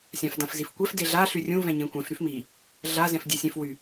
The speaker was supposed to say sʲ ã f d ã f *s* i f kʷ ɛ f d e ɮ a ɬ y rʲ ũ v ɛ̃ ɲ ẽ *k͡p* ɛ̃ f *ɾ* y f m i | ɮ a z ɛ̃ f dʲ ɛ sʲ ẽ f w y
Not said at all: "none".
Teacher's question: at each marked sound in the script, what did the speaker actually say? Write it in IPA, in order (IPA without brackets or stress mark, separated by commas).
z, kʷ, ɾ